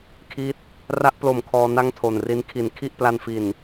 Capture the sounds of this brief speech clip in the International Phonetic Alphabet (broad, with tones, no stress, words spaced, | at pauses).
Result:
kʰi˦˥t̚ | ra˦˥ʔplo˨˩m kʰɔː˧na˥˩ŋtʰo˨˩nri˦˥n kʰi˨˩nkʰi˥˩ʔpla˧n fi˨˩n